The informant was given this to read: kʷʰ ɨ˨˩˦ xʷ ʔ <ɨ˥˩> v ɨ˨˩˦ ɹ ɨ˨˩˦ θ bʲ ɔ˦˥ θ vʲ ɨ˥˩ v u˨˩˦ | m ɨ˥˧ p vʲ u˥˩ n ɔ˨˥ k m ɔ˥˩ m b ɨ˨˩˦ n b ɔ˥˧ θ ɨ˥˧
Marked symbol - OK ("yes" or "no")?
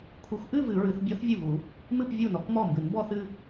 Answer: no